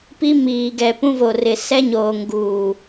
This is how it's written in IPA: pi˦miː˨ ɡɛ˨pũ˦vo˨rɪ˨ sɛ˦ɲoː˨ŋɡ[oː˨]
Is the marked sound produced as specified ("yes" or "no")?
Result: no